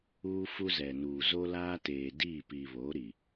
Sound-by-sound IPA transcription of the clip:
uː˦ f u˦ z ɛ˨ n uː˨ z o˦ l aː˦ t eː˨ d iː˦˨ p iː˨ β oː˨˦ ɾ i˨

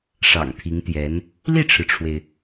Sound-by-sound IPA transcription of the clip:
ʂ ɑ̰˨˩ ŋ t̪ʰ i˧˥ ŋ t̪ j ɛ˧˥ n | l i˥˩ ʈ͡ʂʰ ɻ̩˩ ʈ͡ʂʰ w e˩ ɪ̯

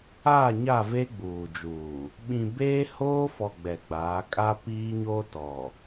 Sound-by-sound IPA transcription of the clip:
aː˦˨ ɲ a˦˨ v e˦ ɡ͡b uː˨ d͡ʒ uː˨ | ɓ ĩ˨ b eː˦ h oː˦ f ɔ˨ ɡ͡b ɛ˨ ɡ͡b aː˨˦ kʼ a˦ p iː˦ ɲ oː˦ t ɔ˨

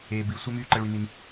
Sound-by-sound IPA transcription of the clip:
eː˧ b i˧ sʷ ɛ˦ m yː˦ ǃ ə˧ ɭ y˧ n i˧ n

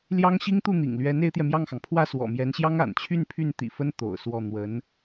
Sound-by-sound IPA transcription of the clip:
l j ɑ˥ ŋ ɕ i˥ ŋ t̪ u˥˩ n̪ ḭ˨˩ ŋ l ɥ ɛ˧˥ n e˧˥ ɪ̯ t̪ j ɛ˧ m j ɑ˥˩ ŋ x ɑ˩ ŋ pʰ w ä˥˩ s w ɔ̰˨˩ m j ɛ˧˥ n ɕ j ɑ˥ ŋ a̰˨˩ n t͡ɕʰ y˥˧ n pʰ y˥˩ n t̪ ḭ˨˩ f ə˥ n t̪ o̰˨˩ ʊ̯ s w ɔ˥˩ n̪ w ə˧˥ n

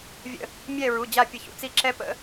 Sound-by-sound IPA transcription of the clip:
vʲ ə̰˦˨ | mʲ ɛ˦˨ ɹ u˩˧˩ d͡ʑ a˦˨ pʲ ə˧˩˧ ç ṵ˩ t͡s i˦˨ ǁ ɛ˦ p ə̰˦

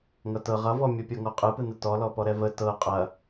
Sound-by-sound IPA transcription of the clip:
ŋ ʌ t ɤ ʁ ʌ v ɔ mʲ ə pʲ ɤ ŋ ɔ qʼ ɯ p ɯ n ə t ɔ l ɔ p ɔ ɾ ɛ v ə t ɤ qʼ ɐ

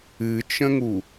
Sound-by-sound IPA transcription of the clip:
ɨ t͡ʃ ə̃ ŋ u

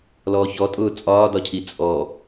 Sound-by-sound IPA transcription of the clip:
l ɔː ç ɔ tʼ ʊː t͡sʼ ɒː d ɒ cʰ i t͡sʼ ɔ

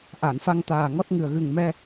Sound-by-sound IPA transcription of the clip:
ʔ a˨˩˨ n f a˧ ŋ t̪ aː˨˩ ŋ ɔ˦˥ t̚ ŋ ɨ˨˩ ə̯ ɣ ɨ˨˩ ŋ m ɛ˧

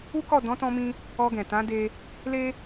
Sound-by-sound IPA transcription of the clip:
u˦ k ɔ˦˨ d ɔ̃˨˦ t ɔ̃˧ m ĩ˧ | ɔ˧ ɡ ɛ̃˨ t ã˨˦ d e˧ | l e˦

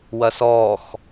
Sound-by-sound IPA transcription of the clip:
w ɐ s ɔː x

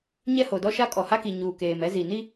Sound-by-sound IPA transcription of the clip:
ɲ ɛ˦ h o˨ d ɔ˦ ʃ a˦ kʼ ɔ˨ h a˦ k i˨ ɲ uː˨ k eː˨ m ɛ˦ z i˨ n i˦

